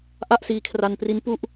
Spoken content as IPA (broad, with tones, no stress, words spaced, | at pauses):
ʔa˥˩ʔsiː˧kʰra˧npri˦˥n pu˥˩ʔ